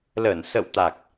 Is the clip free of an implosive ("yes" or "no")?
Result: yes